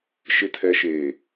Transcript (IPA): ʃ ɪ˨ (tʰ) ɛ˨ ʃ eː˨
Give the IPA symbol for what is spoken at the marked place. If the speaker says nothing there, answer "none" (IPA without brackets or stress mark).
tʰ